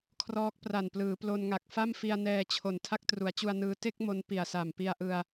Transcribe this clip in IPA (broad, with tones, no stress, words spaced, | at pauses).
kʰrɔː˦˥k̚ pra˨˩nplɯː˩˦plo˧nŋa˨˩k̚ fa˥˩mfi˧a̯ nɛː˧t͡ɕʰo˨˩n tʰa˥˩k̚tru˩˦a̯t͡ɕu˧a̯nɯː˧ te˥˩k̚ mo˦˥n pi˨˩a̯sa˨˩mpi˧a̯ʔɯ˧a̯